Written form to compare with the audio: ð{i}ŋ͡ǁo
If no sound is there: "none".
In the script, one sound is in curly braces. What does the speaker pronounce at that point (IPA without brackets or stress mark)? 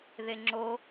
e